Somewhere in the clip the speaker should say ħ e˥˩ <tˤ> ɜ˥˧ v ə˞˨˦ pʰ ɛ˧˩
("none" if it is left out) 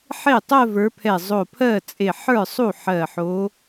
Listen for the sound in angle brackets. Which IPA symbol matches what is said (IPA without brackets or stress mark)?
tˤ